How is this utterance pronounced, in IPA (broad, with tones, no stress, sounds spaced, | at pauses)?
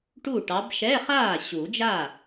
ʈ u˥˩ ʈ ɑ˨˦ b ʃ ɛ˧˥˧ χ aː˥˩ ɕ u˨˩˦ d͡ʒ a˥˩